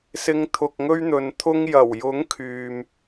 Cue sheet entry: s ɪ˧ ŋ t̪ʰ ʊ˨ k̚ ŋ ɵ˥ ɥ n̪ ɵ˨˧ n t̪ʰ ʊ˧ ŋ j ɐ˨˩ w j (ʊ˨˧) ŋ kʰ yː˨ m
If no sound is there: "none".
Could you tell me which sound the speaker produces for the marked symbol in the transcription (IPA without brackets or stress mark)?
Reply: ʊ˨˥